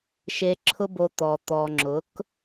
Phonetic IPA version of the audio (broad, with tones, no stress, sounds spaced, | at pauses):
ʃ e˧ ǁʰ ʊ˦ b o˧ t̪ ɔ˨ t̪ ɔ˨ ŋ͡ǁ ʊ˨˦ k